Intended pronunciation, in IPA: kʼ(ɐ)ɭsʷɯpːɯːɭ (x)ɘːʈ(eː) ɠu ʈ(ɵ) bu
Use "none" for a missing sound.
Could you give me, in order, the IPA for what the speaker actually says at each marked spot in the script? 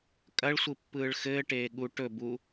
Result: ɐ, x, eː, ɵ

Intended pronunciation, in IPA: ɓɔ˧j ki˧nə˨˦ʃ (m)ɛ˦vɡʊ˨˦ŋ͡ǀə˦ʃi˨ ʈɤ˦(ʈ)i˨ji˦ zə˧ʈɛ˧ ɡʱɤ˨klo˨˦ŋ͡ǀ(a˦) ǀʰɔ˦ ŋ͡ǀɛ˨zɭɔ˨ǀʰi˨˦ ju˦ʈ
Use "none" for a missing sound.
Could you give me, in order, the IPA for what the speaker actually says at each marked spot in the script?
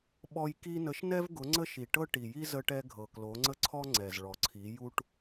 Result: n, ʈ, ə˦

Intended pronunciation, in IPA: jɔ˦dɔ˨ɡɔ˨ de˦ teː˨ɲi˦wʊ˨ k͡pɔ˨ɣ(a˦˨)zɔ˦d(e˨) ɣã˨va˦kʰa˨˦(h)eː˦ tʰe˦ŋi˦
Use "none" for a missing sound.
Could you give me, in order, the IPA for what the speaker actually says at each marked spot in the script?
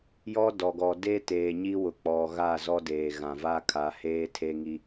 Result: a˦˨, eː˨, h

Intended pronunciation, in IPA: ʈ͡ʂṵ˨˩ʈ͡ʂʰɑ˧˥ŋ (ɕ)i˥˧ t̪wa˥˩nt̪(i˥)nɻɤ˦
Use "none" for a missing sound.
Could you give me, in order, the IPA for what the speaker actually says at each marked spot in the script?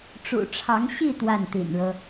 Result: ɕ, ḭ˨˩

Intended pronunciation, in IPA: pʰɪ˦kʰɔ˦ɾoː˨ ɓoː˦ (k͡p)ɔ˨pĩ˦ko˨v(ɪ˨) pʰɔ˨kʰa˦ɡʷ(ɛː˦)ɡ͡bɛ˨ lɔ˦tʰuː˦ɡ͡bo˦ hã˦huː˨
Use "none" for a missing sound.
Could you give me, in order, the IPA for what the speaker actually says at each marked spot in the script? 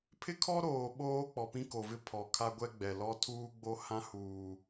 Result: k͡p, ɪ˦, ɛ˦

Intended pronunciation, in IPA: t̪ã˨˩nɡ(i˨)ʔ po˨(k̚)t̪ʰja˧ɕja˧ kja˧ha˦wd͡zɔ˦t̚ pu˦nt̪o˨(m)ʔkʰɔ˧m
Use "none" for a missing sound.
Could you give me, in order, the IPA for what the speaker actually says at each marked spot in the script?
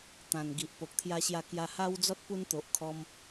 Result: i˨, k̚, none

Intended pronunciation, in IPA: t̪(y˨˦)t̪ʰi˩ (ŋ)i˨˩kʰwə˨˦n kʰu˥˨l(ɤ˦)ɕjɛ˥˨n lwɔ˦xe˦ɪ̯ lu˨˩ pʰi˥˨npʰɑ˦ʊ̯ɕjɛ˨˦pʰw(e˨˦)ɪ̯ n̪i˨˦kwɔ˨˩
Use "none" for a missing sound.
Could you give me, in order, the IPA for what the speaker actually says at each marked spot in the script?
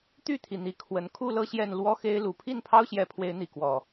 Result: y˥˨, n̪, ɤ˥˨, e˨˦

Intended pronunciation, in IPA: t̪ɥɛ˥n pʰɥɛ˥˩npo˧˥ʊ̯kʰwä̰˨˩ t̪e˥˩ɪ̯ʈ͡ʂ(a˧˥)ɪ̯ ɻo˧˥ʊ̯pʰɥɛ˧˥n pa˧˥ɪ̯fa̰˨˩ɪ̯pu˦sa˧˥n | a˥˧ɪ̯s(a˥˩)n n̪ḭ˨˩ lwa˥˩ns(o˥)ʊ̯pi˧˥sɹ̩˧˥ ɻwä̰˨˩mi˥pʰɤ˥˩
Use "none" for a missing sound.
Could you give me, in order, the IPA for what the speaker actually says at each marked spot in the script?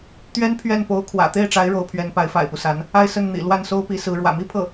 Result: a˧˥, ə˥˩, o˥

